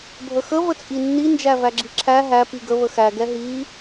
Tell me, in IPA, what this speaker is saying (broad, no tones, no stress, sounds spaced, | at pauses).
bʱ ə x ə v ə t͡sʼ i nː i n d͡ʒ æ v æ ɡ͡ǁ i ǁʰ æ ɦ æ p i ɡ ə β ə x æ ɡ ɛ ɦ i